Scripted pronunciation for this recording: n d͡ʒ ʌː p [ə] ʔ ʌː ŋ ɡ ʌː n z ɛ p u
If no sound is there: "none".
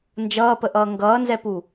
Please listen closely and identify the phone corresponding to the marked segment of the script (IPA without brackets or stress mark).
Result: ə